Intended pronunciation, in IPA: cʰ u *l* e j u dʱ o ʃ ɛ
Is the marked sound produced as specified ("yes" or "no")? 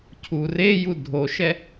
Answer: no